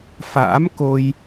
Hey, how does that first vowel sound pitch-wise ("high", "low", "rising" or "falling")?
rising